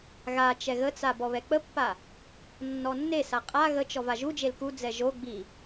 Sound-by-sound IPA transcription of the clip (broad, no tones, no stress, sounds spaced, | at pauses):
ɣ a t͡ʃ ɛ ɣ ə t͡s a b ɔ β ɛ k͡p ə pː a | nː ɔ nː e s a qʼ a ɣ ə t͡ʃ ɔ v a ʒ u d͡ʒ e l k u d͡z ɛ ʒ o ɡ͡b i